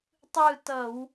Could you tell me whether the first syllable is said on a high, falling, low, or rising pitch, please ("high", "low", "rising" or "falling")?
falling